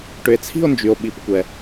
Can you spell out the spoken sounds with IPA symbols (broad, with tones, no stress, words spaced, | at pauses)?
ʈʏ˨e̯t͡sʰi̤˥˧o̯ nd͡ʒy˨o̯ɓi˨˩˦pkʷɛ˨